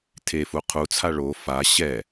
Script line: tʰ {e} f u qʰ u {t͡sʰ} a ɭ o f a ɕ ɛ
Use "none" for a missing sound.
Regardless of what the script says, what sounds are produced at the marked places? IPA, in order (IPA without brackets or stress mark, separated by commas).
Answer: e, t͡sʰ